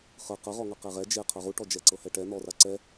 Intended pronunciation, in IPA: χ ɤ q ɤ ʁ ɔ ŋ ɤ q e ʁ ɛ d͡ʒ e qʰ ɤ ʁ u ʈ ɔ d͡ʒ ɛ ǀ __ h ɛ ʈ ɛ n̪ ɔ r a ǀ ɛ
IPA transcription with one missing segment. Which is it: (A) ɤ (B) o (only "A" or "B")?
A